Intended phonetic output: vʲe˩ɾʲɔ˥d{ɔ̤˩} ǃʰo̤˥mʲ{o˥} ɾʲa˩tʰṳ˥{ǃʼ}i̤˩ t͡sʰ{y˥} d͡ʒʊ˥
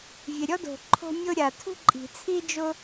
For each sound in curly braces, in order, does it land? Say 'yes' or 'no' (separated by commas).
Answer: no, yes, yes, no